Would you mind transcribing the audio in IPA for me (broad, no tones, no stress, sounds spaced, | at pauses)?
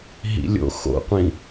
ɦ ḭ lʲ o̰ x o̰ qʷ ĩ